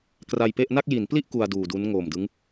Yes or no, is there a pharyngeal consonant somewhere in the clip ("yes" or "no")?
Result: no